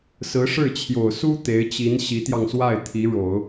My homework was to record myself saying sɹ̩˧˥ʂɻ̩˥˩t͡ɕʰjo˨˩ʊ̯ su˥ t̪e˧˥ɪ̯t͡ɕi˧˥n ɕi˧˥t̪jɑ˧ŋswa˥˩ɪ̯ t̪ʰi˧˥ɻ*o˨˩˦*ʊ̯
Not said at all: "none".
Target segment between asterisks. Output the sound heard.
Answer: o˨˩˦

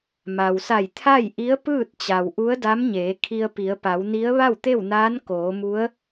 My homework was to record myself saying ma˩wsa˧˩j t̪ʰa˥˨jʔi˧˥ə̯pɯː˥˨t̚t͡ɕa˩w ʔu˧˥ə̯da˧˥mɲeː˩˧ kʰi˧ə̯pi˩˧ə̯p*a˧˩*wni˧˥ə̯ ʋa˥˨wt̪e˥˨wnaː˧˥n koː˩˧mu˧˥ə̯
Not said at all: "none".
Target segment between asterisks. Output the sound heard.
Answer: a˩˧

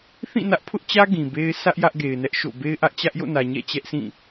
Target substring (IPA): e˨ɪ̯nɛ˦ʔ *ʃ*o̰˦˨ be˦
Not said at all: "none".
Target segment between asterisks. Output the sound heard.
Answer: ʃ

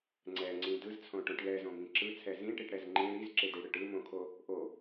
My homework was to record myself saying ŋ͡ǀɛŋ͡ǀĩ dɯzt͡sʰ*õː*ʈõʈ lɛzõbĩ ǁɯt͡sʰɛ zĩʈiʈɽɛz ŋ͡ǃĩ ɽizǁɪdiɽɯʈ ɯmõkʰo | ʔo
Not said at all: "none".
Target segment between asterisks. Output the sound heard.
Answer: õ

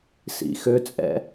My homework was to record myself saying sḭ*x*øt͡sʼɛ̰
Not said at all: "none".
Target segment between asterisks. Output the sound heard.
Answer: x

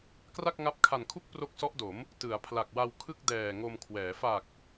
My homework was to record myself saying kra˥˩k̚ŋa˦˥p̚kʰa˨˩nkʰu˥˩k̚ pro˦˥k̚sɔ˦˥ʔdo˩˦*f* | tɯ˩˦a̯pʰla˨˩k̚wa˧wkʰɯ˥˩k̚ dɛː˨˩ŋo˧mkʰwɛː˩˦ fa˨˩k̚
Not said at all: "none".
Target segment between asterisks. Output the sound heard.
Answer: m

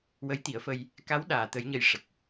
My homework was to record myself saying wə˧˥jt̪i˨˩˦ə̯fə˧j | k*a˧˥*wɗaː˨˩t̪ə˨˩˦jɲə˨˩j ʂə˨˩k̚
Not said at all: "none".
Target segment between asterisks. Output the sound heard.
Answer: a˧˥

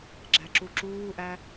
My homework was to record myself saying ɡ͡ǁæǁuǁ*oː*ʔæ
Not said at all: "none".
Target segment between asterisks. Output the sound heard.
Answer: uː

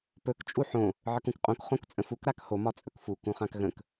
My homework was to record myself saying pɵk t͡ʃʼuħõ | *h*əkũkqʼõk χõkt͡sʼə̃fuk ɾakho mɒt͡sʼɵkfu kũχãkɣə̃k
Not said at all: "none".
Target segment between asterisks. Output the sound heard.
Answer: ʕ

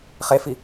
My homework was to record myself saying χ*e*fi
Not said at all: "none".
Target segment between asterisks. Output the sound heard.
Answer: e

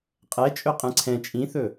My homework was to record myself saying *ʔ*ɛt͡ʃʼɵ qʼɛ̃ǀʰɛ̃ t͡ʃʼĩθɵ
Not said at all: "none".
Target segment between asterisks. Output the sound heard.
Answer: qʼ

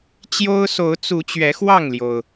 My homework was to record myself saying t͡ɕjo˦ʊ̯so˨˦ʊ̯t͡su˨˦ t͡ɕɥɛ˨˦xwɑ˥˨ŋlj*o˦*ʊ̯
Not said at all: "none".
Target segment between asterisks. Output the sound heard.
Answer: o˩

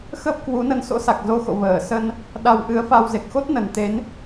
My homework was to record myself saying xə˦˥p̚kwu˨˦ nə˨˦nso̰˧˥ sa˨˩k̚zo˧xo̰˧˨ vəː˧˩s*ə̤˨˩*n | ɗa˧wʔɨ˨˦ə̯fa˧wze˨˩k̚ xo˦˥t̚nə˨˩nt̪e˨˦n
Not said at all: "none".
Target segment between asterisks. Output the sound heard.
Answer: ə˧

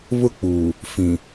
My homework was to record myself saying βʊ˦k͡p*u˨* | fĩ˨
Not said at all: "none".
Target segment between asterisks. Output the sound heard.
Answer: uː˨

